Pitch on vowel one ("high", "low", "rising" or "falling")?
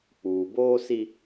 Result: low